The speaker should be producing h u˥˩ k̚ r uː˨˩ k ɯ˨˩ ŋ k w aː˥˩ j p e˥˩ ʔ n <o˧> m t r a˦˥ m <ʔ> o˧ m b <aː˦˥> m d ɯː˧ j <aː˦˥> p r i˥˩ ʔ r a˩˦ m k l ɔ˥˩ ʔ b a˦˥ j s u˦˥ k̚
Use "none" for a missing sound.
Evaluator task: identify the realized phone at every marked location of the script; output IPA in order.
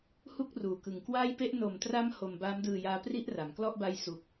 o˨˩, h, aː˦˥, aː˦˥

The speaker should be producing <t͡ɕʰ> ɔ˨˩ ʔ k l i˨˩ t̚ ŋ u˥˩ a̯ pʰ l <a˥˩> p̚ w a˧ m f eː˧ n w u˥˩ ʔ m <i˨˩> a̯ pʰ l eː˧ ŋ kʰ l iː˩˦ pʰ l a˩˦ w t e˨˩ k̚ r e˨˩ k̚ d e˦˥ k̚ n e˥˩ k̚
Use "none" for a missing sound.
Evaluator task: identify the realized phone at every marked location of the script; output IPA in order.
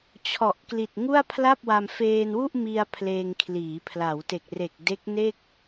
t͡ɕʰ, a˥˩, i˧

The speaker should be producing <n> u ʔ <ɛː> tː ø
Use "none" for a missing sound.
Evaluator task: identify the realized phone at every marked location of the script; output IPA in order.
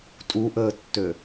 tʼ, əː

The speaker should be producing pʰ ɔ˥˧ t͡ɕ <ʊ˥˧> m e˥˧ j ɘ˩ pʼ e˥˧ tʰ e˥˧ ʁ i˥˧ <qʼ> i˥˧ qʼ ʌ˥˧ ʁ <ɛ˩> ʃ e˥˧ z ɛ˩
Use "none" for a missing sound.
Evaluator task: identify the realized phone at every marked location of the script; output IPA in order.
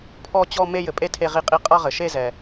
ɔ˥˧, qʼ, ɘ˩

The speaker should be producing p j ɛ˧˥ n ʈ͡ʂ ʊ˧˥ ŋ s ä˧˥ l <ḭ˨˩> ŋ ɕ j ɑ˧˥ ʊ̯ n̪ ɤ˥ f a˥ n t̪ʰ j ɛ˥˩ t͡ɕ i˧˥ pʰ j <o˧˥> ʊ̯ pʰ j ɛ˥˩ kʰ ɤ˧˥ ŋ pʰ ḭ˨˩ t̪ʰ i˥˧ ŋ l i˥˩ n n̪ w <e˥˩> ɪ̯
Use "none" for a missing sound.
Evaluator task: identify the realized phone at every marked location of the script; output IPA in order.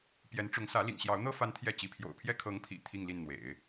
ḭ˨˩, o̰˨˩, ḛ˨˩˦

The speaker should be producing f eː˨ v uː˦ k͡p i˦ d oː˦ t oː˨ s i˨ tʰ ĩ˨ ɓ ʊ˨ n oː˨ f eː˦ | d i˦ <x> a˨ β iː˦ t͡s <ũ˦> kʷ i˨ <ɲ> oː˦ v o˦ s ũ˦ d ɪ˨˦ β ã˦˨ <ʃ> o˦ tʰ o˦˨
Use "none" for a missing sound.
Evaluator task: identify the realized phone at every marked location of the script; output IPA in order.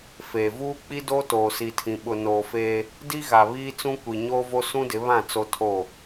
ɣ, ũ˦, ɲ, t͡s

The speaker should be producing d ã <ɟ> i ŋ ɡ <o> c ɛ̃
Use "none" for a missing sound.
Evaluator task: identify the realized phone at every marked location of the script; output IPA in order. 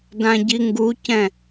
ɟ, u

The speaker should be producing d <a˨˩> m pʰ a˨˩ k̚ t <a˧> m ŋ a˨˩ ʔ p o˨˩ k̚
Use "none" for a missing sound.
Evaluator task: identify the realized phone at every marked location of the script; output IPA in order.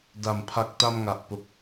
a˨˩, a˧

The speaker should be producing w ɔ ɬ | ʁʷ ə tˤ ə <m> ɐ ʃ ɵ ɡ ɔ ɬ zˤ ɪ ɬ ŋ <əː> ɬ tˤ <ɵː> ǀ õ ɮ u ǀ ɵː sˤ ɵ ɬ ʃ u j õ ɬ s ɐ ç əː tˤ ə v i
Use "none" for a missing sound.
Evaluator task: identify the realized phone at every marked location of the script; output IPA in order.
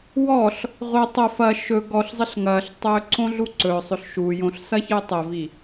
f, ɐː, ɵː

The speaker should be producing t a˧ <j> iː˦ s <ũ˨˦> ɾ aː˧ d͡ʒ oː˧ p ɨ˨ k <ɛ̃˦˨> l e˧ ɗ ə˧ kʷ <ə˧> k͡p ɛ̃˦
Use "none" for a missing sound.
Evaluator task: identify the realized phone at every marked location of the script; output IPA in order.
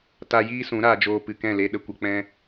j, ũ˨˦, ɛ̃˦˨, ə˧

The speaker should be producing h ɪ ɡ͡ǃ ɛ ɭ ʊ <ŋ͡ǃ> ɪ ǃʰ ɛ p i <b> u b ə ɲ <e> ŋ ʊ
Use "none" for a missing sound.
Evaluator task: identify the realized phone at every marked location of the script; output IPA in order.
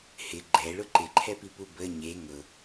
ǃ, p, e

